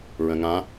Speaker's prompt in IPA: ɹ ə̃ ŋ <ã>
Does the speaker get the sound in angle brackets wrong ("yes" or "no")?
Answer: no